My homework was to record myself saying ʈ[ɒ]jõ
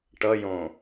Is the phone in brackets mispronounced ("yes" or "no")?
yes